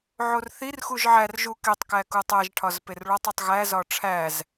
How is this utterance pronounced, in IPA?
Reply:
ʕ o r θ i r x u ʒ ʕ æ r ʒ u k e tˤ k æ k u tˤ æ ʒ ʈʰ ɒ z p e r ɭ ɒ tˤ i tˤ ɣ æ z ɒ ʈ͡ʂʰ æ z

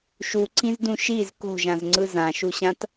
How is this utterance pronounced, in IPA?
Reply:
ʃ u ǀ ĩ z d ũ ʃ i z k o̤ ʒ ã z ŋ͡ǀ ɯ z ã ʃ u ɕ ã t

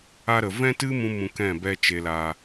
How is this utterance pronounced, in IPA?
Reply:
a˧ ɾ ə˨ v ɛ̃˦ t ɨ˦ m ũ˧ m ũ˧ k ɛ̃˦˨ b ɛ˧ t͡ʃ e˨ l a˨

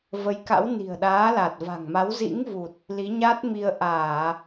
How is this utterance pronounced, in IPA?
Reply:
v ə˨˦ j k a̰˧˥ w n i̤˨˩ ə̯ ɗ aː˨˦ l a˨˩ t̚ v a̤˨˩ ŋ m a˨˦ w z ḭ˧˥ ŋ v u˨˩ t̚ | l i˨˦ ɲ a˦˥ t̚ m i˧ ə̯ ʔ aː˧˩˨

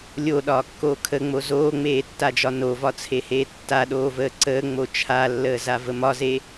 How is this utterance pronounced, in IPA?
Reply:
lʲ o ɗ ɒː kː oː kʰ ə ŋ͡m o z oː ŋ͡m eː tː a d͡ʒ ɒ n o v ɒ t͡sʰ e h eː tː a ɗ oː v əː ǀ əː ŋ͡m o t͡ʃʰ a lː əː z a v ə m ɒ z e

